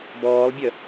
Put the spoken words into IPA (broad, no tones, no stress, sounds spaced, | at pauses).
b ɔː lˠ bʲ œ